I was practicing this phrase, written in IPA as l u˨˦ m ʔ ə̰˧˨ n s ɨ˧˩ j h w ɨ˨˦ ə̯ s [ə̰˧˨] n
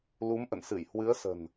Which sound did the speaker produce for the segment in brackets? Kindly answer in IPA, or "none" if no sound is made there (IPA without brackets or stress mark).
ə̤˨˩